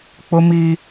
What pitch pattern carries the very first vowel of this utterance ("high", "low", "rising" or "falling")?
high